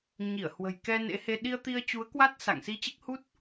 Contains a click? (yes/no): no